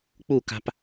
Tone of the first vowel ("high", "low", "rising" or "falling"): falling